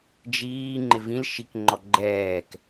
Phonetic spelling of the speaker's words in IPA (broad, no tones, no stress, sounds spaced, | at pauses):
d͡ʒ iː ŋ͡ǃ ɪ v ĩ l ʃ i k ŋ͡ǃ ɔ ɡ͡ǃ ɛː k